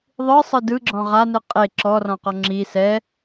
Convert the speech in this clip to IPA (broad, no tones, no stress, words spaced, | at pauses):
ðˤɯsˤɯ dɯɡ͡ǁɔ̃ ʁanɯ qʼe ǁɔrɔ̃qɔ ŋ͡ǁi sɛ